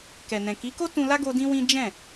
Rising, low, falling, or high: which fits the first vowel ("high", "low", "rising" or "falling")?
low